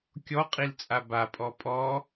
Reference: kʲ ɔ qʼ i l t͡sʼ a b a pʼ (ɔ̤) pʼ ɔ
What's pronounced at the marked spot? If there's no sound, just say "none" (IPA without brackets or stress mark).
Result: ɔ